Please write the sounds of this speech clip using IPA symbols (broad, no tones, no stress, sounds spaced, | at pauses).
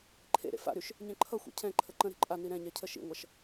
ǃʰ ḛ ɾ ḛ f a̰ ɾ y ʃ | ɲ ɛ̃ ǃʰ ʌ xʷ ḭ cʰ ɛ̃ ǃʰ ə ǃ ə̃ ɾ e̤ ǃʼ a n i ɾ ɛ̃ ɲ ɛ cʰ ə ʃ ḭ ŋʷ ʌ ʃ